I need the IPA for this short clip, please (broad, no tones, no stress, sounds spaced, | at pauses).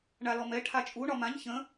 ɳ a l ɔ m ɛ ʈʰ a t͡ʃʼ u ɳ ɒ m ã ɲ ç ə̃